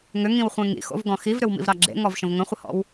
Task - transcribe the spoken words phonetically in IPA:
ŋ ʏ ŋ ĩ w χʷ ẽ ŋ ḭ x o̰ v ɡ ɔ̃ x i v ɾ ʏ w m ḭ v ɾ ɑ ɡ͡ǁ ḛ ŋ ɔ v ʃ ə̃ v ŋ ə̃ χʷ ə h ɔ̰ w

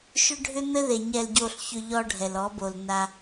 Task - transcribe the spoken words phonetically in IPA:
ʃ ʏ˦ ɖʱ ʏ˦ n̪ ɘ˦ ð e˨ ɲ ɛ˨ l ɟ o˨ ɬ ç ʏ˨ ʎ ɔ˦ ɖʱ ɛ˨ l ɔ˨˦ b o˨ l n a˦

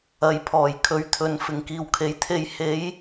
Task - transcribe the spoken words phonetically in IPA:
ɐ˨ j pʰ ɔː˨˩ j kʰ ɵ˨˥ ɥ t̪ʰ ɵ˨ n f ɪ˨˩ ŋ k iː˨˩ w kʰ e˨˧ j t̪ʰ e˧ j h e˨˧ j

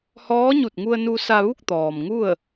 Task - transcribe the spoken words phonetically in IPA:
h ɔː˧˥ ɲ u˧˩ t̚ ŋ u˧ ə̯ n u˧ s a˧ ʋ u˥˨ k̚ t̪ ɔː˩ m ŋ u˥˨ ə̯

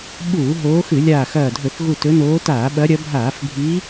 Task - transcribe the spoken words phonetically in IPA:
ɓ uː˧˩˧ ɦ oː˨˦ x ɨ˧˩˧ lʲ aː˧˩ x ɐː˧˩ dʱ ɵ˧˩˧ θ ɣ u˧˩ t ɵ˨˦ n oː˨˦ t aː˧˩˧ ɓ ɐ˨˦ ɾʲ ɐ˨˦ bʱ aː˧˩˧ f bʱ i˨˦

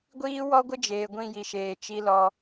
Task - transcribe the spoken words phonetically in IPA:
ɡʷ iː˦ w ɔ˦ ɡʷ ɪ˦ d͡ʒ eː˨ ɡʷ ĩ˦˨ j i˨ ʃ eː˨ t͡ʃ i˦ l ɔ˦

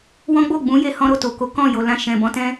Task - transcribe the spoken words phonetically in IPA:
w ɔ̃˦ ɡ͡b o˦˨ ɡ͡b ũ˨˦ j e˧ h ɔ̃˦ ɾ o˦˨ t o˨ k o˨˦ k ɔ̃˦˨ j o˨ l ã˧ ʃ ɛ̃˨ b ɔ̃˨˦ t ɛ̃˦

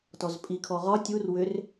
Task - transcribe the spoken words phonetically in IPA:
t ɔ z pʼ i kʰ ɔ ʁ ɒ tʲ u r w ʏ r

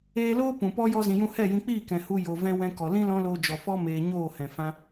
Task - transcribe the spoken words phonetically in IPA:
eː˧ l oː˦ p ũ˨ p ɔ˦ j ɔ˧ z ĩ˨ j ũ˧ h ɛ˦˨ j ĩ˧ k͡p iː˦˨ k ɛ̃˨ h u˧ j o˨ v ɛ̃˦ w ɛ̃˧ k ɔ˨ l ĩ˦ l ɔ̃˦ l oː˧ d͡ʒ ɔ˨ f ɔ˦ m eː˧ ɲ oː˦˨ h ɛ̃˨ f ã˦

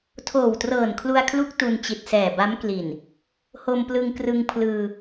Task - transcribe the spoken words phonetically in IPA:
tʰ oː˨˩ w t r ɤː˨˩ n kʰ l u˧ a̯ kʰ l u˦˥ k̚ t u˧ n t͡ɕ i˨˩ t̚ s ɛː˨˩ b a˦˥ m k l i˨˩ n | h o˧ m p l ɯ˧ ŋ k r ɯ˧ ŋ pʰ l ɯː˧

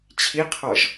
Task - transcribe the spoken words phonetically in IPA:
t͡ɕʰ i qʰ ɔ ʒ

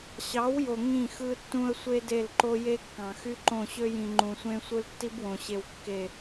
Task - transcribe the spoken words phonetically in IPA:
ɕ ɑ˨˦ w j o˨ ŋ ĩ˦˨ x ɯ˦ tː ũ˦ ə̯ sʷ e˦ d e˦˨ l ǃ o˦ j e˦ kː ɑ̃˨ x y˦ ǃ õ˦˨ ɕ ø˦ j ĩ˨ ŋ͡ǃ ũ˨ sʷ ẽ˦ sʷ ɯ˦ l tː i˦ b w õ˨ ɕ e˨ w kː e˨

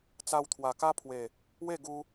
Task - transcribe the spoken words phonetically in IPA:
t͡s a˧ w t̪ʰ w a˨˩ k a˦ pʰ w e˨˩ | w e˥˧ ɡ u˧

